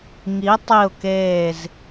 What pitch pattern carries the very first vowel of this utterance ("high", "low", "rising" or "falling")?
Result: rising